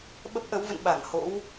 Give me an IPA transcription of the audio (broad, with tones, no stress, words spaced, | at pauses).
ɓə˦˥p̚ʔə˨˦wvə̰˧˨n ɓa˧˩ŋ ho̰˧˥w